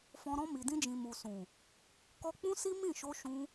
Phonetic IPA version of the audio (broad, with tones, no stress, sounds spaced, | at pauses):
f ɔ̃˧ ɾ ɔ̃˧ m i˨ d ĩ˧ d͡ʒ ĩ˨ m u˨ s ũ˨ | k ɔ˧ k͡p ũ˦ s i˦ m ĩ˦˨ ʃ o˧ ʃ ũ˧